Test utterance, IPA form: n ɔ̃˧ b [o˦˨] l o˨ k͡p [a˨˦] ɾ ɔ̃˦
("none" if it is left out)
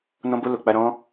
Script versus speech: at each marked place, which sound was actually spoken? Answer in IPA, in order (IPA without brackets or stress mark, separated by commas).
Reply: o˧, a˧